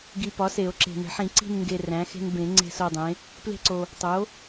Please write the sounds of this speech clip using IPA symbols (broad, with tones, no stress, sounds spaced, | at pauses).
ɡ i˨ p ɒ˩˥ s e˨˩˦ o̯ ǁ e̤˨ n e̤˨˩˦ ħ ĩ˨˩˦ ǀ i̤˦˨ n ŋ ɡ e˨ r æ̃˩˥ x e̤˦ n b ẽ˨˩˦ ŋ͡ǀ e̤˦˨ s o˦˨ dˤ ẽ˩˥ | p l e̤˦˨ ǀ o˨ | tˤ o˩˥